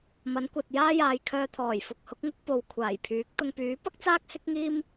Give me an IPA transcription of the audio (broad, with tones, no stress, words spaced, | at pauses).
mɐ˨˥nkʷɐ˨t̚ jaː˥jaː˨˧j kʰœː˧t̪ʰɔː˨˩j fʊ˨k̚hʊ˨˥k̚ŋʊ˥k̚ po˨wkʷʰaː˨˩j pʰyː˨˥k̚ t̪ʊ˧ŋ pyː˨˥pɐ˥k̚ t͡saː˥k̚hɪ˥k̚ŋiː˥m